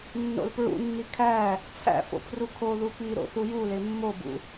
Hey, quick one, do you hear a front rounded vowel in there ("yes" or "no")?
no